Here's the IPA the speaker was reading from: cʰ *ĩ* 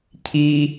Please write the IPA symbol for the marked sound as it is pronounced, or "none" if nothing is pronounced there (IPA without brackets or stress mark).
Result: i